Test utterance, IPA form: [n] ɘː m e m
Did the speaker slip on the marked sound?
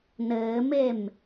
no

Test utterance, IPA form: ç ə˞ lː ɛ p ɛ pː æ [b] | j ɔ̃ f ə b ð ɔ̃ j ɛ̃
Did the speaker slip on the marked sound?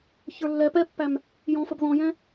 yes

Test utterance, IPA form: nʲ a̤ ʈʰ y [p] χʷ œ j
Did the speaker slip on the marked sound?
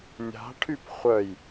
no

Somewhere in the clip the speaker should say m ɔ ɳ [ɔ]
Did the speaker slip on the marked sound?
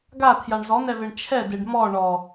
no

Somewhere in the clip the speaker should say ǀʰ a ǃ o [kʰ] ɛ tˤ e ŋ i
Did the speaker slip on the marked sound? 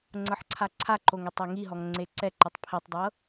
yes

